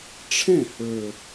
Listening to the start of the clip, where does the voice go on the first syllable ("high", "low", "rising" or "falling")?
falling